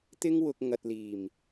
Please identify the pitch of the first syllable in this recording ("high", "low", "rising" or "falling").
high